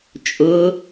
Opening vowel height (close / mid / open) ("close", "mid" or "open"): close